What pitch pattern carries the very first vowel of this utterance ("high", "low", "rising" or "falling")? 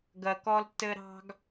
low